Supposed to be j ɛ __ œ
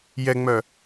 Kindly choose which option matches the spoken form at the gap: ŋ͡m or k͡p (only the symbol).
ŋ͡m